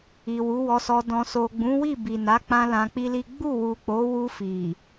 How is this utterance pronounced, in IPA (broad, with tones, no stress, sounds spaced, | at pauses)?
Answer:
i˨ w u˨˦ w ɔ˧ s ɔ˧ d ɔ̃˨ s o˨ ɡ͡b ũ˨˦ w i˦˨ b i˨ n a˨˦ k͡p ã˦ l ã˧ k͡p i˦ l i˦ ɡ͡b u˦˨ w u˨ k͡p o˨˦ w u˧ f i˨